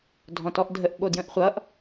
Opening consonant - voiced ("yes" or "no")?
yes